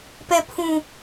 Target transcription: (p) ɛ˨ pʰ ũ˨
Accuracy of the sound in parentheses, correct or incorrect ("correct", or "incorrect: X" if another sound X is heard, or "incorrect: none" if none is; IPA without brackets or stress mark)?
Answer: correct